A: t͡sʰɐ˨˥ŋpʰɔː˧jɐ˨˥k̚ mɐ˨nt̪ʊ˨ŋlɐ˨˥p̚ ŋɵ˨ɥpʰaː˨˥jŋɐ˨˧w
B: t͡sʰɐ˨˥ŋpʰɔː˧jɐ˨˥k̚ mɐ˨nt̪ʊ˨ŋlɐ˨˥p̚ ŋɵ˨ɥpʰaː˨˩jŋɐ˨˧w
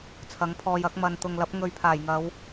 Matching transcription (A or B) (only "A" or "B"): B